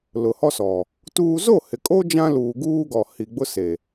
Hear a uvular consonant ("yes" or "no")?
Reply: no